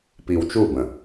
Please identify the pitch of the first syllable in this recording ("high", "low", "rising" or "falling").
low